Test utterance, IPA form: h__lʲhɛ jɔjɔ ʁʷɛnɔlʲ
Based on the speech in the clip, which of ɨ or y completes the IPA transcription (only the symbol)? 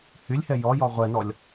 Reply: y